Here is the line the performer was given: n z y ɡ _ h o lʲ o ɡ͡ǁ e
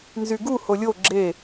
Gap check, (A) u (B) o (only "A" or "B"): A